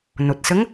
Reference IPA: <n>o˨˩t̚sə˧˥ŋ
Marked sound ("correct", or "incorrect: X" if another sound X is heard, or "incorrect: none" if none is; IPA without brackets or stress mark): correct